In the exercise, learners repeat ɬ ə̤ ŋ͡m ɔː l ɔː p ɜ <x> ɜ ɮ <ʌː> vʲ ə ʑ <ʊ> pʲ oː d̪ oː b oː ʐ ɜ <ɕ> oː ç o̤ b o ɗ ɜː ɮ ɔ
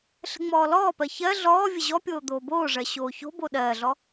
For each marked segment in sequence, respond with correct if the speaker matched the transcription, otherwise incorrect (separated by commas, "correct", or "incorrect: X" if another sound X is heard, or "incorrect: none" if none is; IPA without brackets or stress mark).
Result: incorrect: ç, incorrect: ɔː, incorrect: ɔ, correct